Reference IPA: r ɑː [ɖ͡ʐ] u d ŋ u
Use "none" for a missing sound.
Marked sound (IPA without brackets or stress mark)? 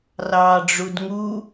ɖ͡ʐ